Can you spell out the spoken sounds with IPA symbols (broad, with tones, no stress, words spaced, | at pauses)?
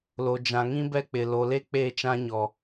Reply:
lo˨d͡ʒã˨ŋĩ˦bɛ˦ k͡pɪ˨ lo˨le˦ k͡peː˦˨t͡ʃã˦ɲɔ˨